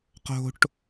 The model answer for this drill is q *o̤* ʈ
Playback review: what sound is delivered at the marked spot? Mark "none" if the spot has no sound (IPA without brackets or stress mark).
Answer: o̤